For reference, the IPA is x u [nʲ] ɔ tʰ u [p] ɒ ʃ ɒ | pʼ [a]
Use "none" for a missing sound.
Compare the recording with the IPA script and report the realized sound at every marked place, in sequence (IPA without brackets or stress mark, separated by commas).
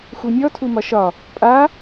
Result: nʲ, m, a